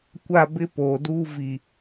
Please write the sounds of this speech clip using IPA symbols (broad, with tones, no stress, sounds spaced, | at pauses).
kʷ a˦˨ b ɪ˦ p oː˨ d uː˦ v i˨